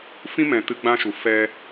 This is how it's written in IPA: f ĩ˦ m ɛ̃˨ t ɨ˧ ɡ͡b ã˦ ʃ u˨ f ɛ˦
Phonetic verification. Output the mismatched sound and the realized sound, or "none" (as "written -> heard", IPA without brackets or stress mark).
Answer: ɛ˦ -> ɛ˧